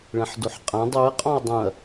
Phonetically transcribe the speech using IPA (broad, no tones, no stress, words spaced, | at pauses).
ɭɛ̃ħdoħqʼã dˤuɐ̯ qʼɔ̃ɐ̯dˤũɐ̯